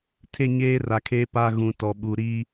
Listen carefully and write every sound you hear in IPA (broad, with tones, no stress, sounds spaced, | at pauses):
tʰ e˦˨ ɲ eː˦ r a˨ kʰ eː˦ p a˦ ɣ ũ˨ t ɔ˨ ɓ u˨ ɾ i˦